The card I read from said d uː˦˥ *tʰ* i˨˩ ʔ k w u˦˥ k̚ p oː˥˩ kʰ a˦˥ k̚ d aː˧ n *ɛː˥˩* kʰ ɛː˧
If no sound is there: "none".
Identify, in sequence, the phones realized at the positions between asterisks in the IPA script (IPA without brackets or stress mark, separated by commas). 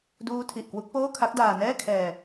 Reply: tʰ, ɛː˥˩